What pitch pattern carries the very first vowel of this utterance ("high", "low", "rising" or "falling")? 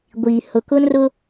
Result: low